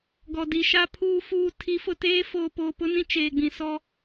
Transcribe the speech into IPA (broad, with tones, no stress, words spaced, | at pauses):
ɡɔ˨di˨ ʃa˨pʰuː˨ fuː˨tʰi˨˦fʊ˨teː˦ foː˨poː˨pʊ˦nĩ˦˨ t͡ʃeː˨ɡ͡bĩ˨ sɔ˦